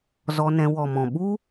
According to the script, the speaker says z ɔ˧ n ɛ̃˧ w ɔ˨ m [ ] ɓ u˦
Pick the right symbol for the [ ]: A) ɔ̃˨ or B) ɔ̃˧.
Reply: A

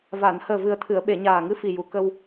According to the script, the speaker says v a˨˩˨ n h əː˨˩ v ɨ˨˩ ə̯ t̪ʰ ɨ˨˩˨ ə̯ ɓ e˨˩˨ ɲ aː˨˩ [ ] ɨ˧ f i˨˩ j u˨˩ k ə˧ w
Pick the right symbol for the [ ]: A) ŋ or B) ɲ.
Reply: A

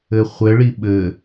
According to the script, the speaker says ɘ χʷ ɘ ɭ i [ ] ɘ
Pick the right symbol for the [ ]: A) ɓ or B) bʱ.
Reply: A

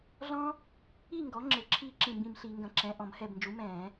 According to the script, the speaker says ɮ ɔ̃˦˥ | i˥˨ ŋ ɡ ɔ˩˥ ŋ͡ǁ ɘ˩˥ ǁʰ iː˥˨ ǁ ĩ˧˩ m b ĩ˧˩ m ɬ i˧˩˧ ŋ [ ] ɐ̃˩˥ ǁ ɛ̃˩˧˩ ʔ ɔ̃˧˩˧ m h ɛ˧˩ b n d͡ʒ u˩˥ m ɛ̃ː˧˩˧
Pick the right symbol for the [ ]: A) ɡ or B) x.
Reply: A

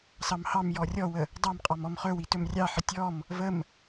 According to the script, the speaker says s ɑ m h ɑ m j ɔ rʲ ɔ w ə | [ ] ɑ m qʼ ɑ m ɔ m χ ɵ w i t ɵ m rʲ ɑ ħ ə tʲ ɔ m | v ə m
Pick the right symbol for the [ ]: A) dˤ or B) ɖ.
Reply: A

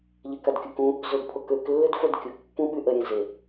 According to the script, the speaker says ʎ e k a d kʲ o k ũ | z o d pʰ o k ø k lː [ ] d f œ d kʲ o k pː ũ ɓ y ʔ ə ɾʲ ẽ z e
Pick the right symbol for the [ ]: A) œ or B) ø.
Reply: B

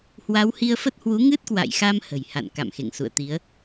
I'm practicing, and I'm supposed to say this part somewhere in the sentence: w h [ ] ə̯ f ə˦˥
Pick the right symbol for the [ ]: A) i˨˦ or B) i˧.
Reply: B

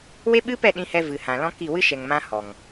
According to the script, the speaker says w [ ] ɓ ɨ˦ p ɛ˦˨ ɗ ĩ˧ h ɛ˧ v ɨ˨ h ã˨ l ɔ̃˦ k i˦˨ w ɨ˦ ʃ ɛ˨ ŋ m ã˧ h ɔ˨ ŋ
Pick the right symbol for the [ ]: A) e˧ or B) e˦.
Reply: B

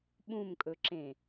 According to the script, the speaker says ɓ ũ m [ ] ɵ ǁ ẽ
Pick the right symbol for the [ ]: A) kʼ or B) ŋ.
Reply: A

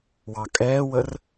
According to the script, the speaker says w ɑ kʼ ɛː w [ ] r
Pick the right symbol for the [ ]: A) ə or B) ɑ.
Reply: A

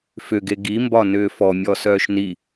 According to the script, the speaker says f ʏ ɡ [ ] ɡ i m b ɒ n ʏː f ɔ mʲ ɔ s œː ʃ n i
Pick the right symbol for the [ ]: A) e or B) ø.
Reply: A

